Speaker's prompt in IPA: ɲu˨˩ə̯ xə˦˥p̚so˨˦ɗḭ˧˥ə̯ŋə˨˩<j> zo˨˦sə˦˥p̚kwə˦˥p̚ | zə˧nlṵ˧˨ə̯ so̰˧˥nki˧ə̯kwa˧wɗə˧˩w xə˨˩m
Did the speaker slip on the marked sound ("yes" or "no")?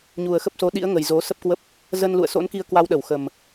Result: no